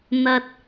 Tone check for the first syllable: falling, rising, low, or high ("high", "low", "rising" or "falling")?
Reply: high